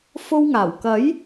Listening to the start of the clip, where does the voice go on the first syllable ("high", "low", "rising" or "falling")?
high